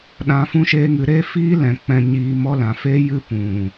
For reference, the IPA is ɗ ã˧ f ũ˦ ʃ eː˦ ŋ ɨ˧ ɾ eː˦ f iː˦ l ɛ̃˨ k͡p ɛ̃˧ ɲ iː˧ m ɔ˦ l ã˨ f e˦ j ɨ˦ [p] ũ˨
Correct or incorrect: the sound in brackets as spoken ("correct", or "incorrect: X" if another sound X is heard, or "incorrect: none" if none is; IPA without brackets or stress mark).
correct